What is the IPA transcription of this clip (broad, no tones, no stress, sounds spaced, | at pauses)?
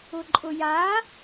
ʊ ǃʼ ʊ j a